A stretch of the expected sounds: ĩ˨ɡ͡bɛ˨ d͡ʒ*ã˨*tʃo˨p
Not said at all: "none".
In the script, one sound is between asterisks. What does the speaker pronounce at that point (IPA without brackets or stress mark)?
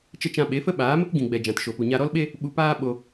ã˨